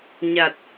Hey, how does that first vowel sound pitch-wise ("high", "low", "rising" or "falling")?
low